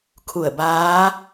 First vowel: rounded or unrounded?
rounded